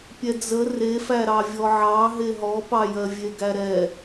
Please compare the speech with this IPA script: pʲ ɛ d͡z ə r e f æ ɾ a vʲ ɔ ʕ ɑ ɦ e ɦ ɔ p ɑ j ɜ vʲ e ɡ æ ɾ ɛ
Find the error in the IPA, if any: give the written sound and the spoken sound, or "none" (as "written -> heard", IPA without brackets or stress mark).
a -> ɑ